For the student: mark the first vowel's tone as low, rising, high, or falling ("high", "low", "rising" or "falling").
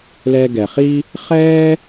high